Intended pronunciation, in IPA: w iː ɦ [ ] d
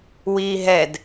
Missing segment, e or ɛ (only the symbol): ɛ